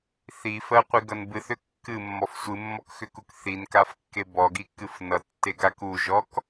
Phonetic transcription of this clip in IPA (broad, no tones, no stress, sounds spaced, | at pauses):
θ i f ɜ qʷ i ɡ ʌ n b ɨ θ ʏ kː ɨ mː ɔ f sʷ ɨ mː ɔ k x ʏ k u k θ i n k a f kː e b ɔ ɡ i kː ɨ f n ʌ tː e ɡ a k u ʒ ɔ k